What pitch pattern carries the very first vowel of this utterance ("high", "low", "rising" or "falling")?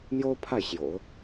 high